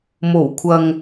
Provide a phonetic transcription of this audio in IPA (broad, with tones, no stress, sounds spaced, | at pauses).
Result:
m o˨˩ w kʷʰ ɐ˨ ŋ